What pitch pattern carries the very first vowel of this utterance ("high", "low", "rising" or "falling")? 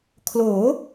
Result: rising